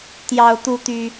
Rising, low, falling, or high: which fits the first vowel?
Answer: high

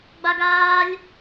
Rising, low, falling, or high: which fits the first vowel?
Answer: high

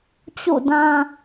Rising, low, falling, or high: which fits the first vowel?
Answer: falling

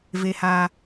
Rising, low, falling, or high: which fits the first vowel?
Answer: low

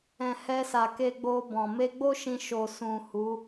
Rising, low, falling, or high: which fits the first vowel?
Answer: low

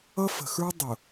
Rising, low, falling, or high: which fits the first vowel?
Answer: high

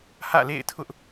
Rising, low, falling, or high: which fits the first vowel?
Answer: falling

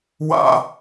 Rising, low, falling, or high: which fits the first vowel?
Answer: high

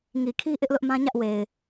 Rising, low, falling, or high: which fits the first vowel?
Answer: low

